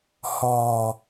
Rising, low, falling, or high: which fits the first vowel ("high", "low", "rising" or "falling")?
low